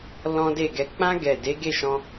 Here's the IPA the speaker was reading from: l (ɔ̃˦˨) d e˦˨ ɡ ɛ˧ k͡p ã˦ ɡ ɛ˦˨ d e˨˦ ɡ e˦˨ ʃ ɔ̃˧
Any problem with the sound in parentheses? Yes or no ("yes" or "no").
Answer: yes